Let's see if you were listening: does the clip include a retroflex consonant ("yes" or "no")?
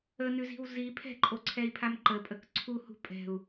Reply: no